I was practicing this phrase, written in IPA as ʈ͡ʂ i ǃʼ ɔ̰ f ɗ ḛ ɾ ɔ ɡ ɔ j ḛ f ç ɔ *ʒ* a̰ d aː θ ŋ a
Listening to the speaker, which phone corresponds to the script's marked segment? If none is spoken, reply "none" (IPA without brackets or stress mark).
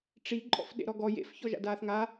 ʒ